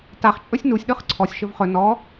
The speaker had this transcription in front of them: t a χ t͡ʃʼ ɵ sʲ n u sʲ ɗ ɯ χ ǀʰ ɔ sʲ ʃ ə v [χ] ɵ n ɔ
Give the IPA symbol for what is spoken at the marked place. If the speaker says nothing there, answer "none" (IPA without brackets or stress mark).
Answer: χ